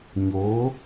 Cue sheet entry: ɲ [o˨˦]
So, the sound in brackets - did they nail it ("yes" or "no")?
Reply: yes